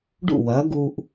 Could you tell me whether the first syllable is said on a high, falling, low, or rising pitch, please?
falling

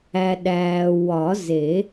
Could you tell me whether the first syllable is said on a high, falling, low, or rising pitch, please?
low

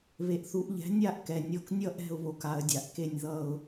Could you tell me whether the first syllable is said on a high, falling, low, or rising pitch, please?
low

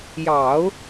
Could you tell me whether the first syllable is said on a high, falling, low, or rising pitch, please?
low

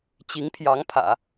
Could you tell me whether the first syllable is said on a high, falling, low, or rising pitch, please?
rising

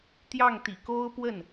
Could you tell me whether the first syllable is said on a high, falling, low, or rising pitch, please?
falling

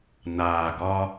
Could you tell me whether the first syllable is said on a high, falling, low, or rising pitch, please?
low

